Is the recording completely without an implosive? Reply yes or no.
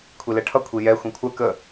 yes